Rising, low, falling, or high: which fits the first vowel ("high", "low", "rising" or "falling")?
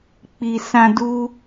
high